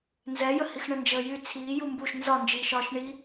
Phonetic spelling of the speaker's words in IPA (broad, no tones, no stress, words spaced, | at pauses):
nzɛjəhix ɳənd͡ʒəːjy t͡sʰiː jumbuʃ nzɒnd͡ʒiːʃɒːʃ ɳi